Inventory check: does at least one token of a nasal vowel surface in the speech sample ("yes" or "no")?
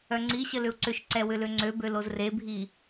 no